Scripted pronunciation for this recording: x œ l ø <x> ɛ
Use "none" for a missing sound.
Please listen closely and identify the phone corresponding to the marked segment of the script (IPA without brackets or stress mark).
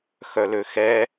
x